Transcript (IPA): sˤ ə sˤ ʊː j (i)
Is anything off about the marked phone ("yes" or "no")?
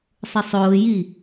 no